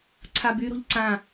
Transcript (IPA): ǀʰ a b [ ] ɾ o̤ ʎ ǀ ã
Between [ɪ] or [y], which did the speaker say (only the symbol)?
y